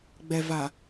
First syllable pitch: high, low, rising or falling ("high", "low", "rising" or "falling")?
low